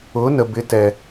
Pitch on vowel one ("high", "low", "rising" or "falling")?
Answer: rising